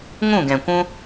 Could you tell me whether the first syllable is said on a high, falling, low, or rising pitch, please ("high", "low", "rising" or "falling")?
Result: falling